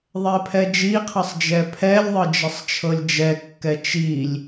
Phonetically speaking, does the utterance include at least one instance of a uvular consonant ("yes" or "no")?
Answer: yes